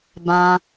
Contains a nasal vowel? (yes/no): yes